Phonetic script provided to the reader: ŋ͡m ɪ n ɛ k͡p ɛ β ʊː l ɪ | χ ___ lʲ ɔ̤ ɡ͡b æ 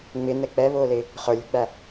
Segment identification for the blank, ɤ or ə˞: ə˞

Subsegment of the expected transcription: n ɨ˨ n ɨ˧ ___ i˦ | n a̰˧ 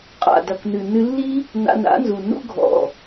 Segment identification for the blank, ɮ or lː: lː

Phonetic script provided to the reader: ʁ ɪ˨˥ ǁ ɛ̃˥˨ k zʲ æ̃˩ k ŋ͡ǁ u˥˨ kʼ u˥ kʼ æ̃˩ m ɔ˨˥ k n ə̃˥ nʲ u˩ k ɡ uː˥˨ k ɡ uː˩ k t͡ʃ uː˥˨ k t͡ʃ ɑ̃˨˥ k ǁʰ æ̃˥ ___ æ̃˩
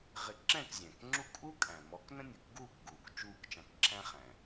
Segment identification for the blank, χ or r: χ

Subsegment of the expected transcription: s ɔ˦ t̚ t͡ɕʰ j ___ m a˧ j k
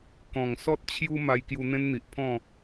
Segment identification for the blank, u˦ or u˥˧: u˦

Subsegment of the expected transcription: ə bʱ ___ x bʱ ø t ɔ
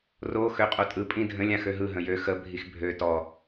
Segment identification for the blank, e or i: i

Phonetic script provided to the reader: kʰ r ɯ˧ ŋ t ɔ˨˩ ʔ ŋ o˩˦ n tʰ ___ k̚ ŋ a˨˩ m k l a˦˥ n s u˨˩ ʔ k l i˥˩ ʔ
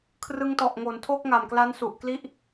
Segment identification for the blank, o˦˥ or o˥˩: o˥˩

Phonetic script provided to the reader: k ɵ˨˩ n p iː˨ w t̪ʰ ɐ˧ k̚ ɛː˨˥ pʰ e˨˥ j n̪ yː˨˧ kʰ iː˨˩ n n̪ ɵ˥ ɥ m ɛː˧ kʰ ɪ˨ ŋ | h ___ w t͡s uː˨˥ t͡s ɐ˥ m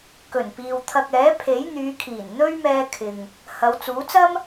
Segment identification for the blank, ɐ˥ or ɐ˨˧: ɐ˨˧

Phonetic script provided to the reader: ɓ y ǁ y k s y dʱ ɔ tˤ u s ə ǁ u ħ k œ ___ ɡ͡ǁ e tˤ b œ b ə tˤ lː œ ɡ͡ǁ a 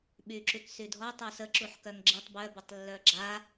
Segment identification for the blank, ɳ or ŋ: ŋ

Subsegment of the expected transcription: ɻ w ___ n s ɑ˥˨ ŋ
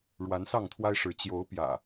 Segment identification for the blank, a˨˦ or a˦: a˨˦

